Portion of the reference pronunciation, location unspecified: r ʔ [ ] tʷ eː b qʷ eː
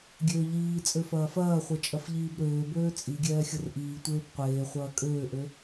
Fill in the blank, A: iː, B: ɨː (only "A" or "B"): A